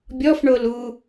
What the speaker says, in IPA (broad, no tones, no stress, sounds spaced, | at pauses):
bʲ ɔ f ɳ o l u